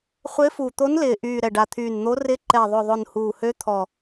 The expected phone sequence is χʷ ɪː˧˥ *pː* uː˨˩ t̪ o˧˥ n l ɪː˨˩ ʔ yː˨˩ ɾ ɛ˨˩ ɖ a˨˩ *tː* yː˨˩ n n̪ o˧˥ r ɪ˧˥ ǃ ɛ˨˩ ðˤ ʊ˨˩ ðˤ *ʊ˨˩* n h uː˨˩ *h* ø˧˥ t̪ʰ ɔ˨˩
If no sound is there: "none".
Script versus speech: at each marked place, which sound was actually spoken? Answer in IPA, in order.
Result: f, t̪ʰ, ʊ˨˩, h

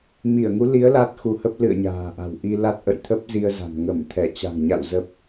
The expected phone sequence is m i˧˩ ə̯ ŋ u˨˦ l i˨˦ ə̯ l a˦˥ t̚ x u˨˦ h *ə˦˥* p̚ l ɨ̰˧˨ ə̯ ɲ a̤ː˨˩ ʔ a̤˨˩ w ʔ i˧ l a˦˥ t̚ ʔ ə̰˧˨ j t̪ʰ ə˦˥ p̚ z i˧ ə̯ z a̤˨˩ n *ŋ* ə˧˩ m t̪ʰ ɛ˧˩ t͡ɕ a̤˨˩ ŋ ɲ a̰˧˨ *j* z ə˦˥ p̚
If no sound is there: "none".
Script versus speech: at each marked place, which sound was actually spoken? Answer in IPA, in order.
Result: ə˦˥, ŋ, w

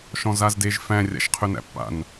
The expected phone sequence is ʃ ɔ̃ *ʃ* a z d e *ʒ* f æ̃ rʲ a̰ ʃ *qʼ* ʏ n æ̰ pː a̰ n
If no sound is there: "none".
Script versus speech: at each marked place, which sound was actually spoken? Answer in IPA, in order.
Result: z, ʒ, qʰ

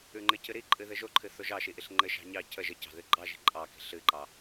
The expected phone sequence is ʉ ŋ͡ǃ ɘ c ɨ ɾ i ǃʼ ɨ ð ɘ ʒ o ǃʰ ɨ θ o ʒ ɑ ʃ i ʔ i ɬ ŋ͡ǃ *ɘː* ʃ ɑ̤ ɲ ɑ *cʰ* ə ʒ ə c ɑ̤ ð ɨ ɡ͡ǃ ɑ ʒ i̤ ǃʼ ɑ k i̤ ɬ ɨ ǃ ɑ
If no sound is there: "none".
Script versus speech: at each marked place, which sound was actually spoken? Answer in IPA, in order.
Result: ɘ, cʰ

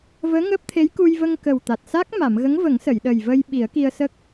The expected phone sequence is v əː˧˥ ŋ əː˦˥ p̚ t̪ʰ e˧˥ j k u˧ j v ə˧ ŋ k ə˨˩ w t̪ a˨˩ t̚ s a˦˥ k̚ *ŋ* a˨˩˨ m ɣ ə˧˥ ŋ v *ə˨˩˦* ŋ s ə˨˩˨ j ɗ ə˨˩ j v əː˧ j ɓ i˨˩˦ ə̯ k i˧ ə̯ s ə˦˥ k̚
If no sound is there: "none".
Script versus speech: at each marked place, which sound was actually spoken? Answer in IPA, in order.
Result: m, ə˨˩˦

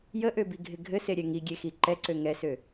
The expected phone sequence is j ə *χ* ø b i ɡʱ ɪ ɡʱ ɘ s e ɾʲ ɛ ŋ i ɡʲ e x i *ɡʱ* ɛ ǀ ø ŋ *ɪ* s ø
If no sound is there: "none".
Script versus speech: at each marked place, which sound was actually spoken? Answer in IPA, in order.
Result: ʔ, ǃ, ɛ

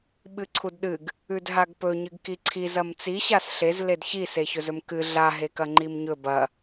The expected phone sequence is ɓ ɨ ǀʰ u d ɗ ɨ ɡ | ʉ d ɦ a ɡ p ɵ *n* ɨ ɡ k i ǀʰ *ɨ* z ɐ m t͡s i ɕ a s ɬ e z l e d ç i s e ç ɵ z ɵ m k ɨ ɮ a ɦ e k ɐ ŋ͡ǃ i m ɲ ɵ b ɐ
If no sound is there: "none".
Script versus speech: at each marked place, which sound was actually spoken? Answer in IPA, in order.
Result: ɲ, i

